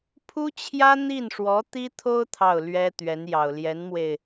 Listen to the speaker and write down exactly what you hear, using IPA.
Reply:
pʰ u˥ t͡ɕʰ j ä˥ n̪ i˥˩ n ʂ w ɔ˧˥ t̪ i˥ t̪ʰ o˥ ʊ̯ t̪ʰ ɑ˥˩ ʊ̯ l ɥ ɛ˥ t̪ ɥ ɛ˧˥ n j ɑ˨˩ ʊ̯ l j ɛ˧˥ n m w e˧ ɪ̯

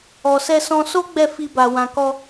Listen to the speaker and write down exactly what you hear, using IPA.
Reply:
ɔ˨ s ɛ˧ s ɔ̃˧ s o˦ ɡ͡b ɛ˦˨ f i˧ b a˨ w ã˨ k ɔ˧

